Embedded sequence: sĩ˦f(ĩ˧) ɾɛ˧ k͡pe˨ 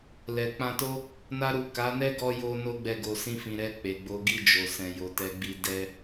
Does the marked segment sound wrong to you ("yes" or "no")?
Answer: no